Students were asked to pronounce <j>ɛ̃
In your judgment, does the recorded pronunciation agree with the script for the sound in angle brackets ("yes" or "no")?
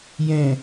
yes